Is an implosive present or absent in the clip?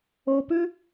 absent